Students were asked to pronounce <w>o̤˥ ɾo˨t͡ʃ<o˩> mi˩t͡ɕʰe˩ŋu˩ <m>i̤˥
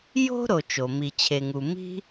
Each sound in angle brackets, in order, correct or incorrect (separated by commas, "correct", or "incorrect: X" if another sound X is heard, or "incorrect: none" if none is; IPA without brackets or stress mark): incorrect: j, correct, correct